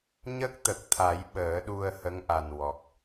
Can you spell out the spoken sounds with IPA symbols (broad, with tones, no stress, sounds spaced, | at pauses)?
ɲ ə˦˥ k̚ t̪ ə˨˩ k̚ t̪ʰ a˨˩˦ j ɓ əː˨˩˦ ɗ u˧ ə̯ h ə˧˥ ŋ ʔ a˨˩ n w ɔ˨˩ k̚